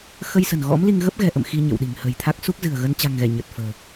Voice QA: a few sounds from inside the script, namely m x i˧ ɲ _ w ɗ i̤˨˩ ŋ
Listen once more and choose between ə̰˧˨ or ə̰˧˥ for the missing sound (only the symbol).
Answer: ə̰˧˨